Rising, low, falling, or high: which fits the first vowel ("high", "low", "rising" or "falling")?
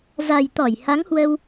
low